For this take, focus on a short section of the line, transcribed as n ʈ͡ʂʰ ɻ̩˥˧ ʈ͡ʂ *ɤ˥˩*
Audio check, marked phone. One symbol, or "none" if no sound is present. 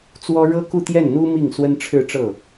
ɤ˥˩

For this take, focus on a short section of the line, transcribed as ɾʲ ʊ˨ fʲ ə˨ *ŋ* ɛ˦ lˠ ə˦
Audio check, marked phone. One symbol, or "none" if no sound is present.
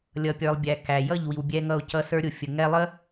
ŋ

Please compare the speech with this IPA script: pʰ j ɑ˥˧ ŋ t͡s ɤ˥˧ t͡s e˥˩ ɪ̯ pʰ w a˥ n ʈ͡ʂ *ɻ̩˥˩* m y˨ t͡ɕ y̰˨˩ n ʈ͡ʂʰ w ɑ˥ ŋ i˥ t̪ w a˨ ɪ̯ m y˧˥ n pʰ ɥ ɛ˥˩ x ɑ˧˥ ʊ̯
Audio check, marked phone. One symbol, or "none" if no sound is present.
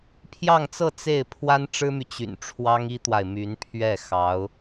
ɻ̩˥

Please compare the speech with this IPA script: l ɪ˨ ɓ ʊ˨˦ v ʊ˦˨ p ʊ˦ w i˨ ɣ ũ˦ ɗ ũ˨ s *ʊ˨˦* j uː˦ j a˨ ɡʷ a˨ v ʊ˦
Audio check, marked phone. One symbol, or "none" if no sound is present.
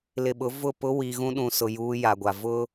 ʊ˨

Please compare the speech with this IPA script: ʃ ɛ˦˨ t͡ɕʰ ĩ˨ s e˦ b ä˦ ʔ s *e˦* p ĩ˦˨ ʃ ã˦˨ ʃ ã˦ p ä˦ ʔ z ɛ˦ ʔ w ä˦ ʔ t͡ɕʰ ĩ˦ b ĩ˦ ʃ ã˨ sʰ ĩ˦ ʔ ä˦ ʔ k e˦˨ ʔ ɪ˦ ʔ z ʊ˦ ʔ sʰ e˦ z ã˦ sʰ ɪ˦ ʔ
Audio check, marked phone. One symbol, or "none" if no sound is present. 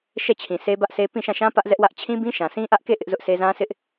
e˦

